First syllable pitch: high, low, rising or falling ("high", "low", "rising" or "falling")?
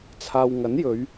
low